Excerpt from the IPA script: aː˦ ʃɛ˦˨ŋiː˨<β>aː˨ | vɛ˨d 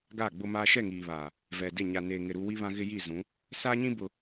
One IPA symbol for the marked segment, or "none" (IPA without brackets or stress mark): β